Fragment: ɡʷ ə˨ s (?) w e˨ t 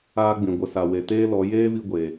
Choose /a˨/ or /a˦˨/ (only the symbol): a˨